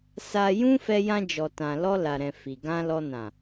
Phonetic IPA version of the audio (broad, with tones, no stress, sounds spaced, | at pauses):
s a˧ j ũ˦ f ɛ˧ j ã˧ d͡ʒ ɔ˨ t ã˨ l ɔ˧ l a˨ ɾ ɛ̃˨ f i˨ ɡ ã˧ l ɔ˧ n ã˨